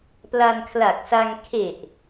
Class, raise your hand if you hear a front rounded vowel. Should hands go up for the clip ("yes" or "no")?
no